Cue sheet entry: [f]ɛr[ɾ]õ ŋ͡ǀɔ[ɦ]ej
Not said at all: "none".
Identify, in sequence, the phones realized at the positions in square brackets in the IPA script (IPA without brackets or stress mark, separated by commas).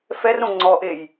f, ɾ, ʔ